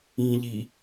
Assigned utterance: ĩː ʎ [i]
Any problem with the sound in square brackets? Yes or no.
no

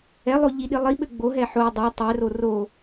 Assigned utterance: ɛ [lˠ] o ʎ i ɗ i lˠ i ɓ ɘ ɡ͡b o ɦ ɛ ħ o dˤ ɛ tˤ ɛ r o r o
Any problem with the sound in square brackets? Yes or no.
no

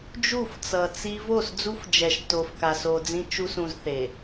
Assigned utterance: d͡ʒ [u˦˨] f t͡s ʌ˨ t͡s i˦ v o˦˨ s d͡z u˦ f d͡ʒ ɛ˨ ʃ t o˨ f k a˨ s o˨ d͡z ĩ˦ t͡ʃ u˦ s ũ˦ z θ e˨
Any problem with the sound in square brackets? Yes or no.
no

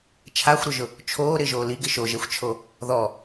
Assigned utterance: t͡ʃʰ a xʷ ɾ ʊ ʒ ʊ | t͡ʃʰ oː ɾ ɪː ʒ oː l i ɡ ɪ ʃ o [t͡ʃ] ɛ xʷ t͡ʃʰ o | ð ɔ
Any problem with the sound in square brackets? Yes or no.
yes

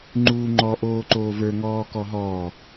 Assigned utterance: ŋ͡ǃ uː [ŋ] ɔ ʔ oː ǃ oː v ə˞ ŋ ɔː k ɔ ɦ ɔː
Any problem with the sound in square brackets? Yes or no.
yes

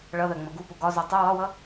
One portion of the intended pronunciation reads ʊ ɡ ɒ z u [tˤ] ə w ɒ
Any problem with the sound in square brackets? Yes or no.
no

